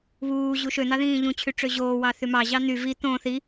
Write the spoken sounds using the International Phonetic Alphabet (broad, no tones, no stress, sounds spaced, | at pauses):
β uː ʑ u ʃ ø n̪ ɑ ð ĩː ʎ ũ t͡ɕʰ y ʈ͡ʂ ø ʑ oː w ɑ θ y m ɑ ʑ ɑ n̪ y v i t̪ õ θ i